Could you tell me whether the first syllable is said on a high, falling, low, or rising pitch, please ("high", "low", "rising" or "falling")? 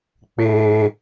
high